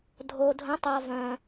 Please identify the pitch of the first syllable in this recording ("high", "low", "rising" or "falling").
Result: low